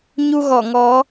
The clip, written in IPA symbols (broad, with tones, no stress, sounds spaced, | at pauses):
ɲ u˧ ɣ ɔ˧˩ ŋ ɔ˨˦